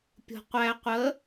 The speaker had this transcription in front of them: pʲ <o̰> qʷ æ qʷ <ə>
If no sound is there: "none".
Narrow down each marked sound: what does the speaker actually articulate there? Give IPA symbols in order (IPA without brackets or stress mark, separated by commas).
o̤, ə